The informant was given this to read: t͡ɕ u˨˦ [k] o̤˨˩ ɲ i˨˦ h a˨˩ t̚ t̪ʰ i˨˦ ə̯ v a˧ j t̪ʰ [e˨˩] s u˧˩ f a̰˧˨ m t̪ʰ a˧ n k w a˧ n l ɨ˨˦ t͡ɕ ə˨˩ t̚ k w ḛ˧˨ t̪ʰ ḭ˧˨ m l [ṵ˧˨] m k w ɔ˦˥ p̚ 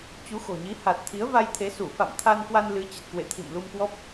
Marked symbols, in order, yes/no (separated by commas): no, no, no